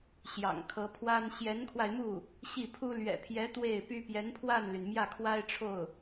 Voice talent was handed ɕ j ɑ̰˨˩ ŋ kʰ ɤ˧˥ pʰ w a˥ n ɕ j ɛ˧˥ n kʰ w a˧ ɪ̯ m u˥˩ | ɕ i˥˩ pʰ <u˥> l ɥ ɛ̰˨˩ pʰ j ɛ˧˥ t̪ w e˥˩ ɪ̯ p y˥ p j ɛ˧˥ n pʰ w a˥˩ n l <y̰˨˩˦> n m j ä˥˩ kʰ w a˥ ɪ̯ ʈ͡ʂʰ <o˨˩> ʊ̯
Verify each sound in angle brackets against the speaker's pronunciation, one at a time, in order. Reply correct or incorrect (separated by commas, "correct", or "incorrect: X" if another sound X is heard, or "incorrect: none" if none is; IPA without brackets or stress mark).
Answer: correct, incorrect: y˩, incorrect: o˥˩